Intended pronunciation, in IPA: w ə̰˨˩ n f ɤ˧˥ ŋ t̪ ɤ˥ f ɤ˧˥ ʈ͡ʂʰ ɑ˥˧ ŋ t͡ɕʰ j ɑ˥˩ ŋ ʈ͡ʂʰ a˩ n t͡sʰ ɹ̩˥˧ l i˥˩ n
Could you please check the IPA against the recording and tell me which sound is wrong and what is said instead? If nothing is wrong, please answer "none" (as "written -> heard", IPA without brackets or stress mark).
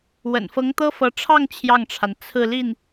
none